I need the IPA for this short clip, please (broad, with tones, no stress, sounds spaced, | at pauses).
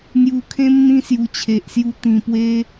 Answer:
n̪ j u˨˩ kʰ ẽ˧ m n̪ ĩ˧ s j u˨˩ t͡ɕʰ e˨ ʔ s j u˧ t̪ ĩ˨˩ p w e˧